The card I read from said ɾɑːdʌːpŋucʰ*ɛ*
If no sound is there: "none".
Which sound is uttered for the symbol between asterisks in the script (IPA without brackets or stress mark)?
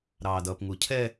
ɛ